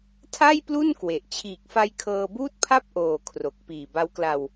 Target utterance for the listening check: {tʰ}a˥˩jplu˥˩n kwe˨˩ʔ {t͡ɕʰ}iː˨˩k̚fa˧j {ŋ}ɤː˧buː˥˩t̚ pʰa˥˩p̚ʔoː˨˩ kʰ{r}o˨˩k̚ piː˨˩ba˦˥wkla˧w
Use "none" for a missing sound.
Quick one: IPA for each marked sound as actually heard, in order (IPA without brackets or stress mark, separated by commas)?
tʰ, t͡ɕʰ, kʰ, r